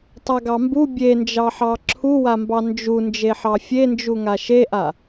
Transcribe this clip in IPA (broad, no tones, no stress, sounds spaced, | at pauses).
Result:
tˤ a ɡ ɑ m b u bʲ e n d͡ʒ ɑ ħ ɑ ǁʰ u w a m b ɑ n d͡ʒ u n d͡ʒ e ħ ɑ fʲ e n d͡ʒ u ŋ a ʃ e ʔ a